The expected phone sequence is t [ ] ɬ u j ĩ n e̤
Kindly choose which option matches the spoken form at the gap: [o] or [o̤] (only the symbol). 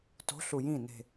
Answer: o̤